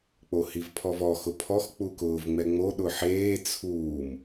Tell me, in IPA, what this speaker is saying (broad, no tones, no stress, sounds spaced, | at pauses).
k͡p o h i v pʰ ɔ v ɔ x ʊ pʰ ɔ x k͡p u k ʊː v ŋ͡m ɛ ŋ͡m o ɗ ʊ ħ eː t͡sʰ uː m